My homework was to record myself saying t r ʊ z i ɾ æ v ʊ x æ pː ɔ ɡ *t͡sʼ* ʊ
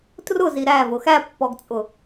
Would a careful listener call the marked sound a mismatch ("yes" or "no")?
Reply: no